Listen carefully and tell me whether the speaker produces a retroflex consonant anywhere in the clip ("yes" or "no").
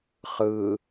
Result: no